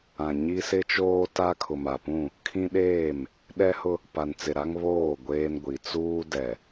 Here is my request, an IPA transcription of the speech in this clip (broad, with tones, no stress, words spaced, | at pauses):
ã˨ ɲi˦sɪ˦t͡ʃoː˦ta˦ kʰʊ˨ma˨pũ˦˨ | kʰĩ˦ɗeː˦˨m | ɗɛ˦hʊ˦ | pa˨nt͡sɪ˨ɾa˦ŋ βoː˦˨ ɡʷeː˦nɡʷi˨ t͡suː˦ dɛ˨